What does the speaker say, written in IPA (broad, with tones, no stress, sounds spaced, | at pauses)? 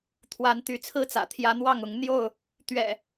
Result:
t̪ʰ w a˨˦ n t̪ y˨˦ t͡sʰ ɹ̩˦ t͡s ä̰˨˩ t̪ʰ j ä˦ n̪ w ɑ˥˨ ŋ ʊ˨˦ ŋ n̪ j o˥˨ ʊ̯ | t̪ ɥ ɛ̰˨˩